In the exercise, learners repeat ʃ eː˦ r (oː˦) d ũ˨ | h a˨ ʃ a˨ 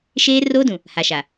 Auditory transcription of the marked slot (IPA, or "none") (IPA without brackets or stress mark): oː˦